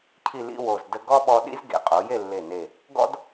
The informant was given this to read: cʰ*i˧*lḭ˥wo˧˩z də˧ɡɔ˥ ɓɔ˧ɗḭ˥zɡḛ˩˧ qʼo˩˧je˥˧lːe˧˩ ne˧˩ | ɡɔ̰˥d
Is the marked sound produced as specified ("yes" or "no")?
no